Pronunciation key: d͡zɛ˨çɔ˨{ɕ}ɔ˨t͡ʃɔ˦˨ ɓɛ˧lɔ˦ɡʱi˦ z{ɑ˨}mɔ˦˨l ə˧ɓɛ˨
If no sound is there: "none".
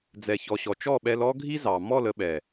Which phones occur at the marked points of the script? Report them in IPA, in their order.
ɕ, ɑ˨

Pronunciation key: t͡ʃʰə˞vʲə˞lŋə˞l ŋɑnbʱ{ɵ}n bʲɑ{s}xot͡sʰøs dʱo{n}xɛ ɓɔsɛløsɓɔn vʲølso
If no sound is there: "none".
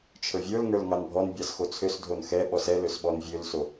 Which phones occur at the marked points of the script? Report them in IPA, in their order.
ɔ, s, n

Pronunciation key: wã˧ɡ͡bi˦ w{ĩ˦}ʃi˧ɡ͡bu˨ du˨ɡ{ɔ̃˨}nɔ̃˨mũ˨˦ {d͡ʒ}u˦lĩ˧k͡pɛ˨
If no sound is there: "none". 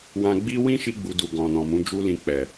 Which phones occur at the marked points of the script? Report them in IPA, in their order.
ĩ˦, ɔ̃˨, d͡ʒ

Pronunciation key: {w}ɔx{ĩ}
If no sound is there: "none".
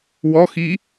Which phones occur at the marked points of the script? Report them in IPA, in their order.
w, i

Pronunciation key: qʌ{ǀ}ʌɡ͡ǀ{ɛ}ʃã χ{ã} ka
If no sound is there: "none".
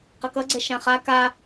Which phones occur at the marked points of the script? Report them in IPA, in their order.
k, ɛ, a

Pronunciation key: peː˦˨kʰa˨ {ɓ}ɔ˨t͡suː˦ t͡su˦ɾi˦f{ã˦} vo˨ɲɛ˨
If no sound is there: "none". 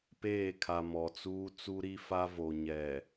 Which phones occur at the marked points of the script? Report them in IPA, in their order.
m, a˦

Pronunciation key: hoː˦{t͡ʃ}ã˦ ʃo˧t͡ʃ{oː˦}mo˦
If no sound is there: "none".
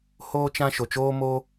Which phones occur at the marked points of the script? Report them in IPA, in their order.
t͡ʃ, oː˦

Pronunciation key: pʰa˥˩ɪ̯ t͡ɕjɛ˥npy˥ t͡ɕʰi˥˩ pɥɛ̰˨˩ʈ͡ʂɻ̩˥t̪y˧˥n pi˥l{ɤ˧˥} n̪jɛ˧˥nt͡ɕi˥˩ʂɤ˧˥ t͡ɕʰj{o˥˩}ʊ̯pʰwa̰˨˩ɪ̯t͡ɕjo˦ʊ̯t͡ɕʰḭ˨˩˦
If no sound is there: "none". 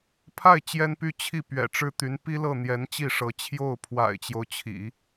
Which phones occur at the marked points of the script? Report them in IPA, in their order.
ɤ˥˩, o˥˩

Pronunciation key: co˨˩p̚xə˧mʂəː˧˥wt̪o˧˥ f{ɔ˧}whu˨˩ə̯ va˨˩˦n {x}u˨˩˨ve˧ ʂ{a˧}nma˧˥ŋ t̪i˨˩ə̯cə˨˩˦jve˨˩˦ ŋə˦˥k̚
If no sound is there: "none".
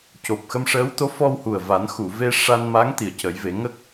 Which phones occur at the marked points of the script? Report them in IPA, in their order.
ɔ˧, x, a˧

